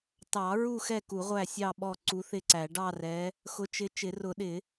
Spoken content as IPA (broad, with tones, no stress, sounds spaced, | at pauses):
t ɑ˨˩˦ ɹ u˦˨ x ɛ˦˨ k u˨˩˦ ʁʷ æ˦˨ sʲ ɑ˦˨ ɓ ɔ˦˨ ǀ u˨˦ θ ɪ˦˨ ǀ æ˨˩˦ ɖ ɑ˦˨ r ɛ˨˦ | x ʊ˨˦ t͡ʃ ɪ˨˦ t͡ʃ ɪ˨˩˦ r ʊ˨˩˦ ɗ ɪ˨˩˦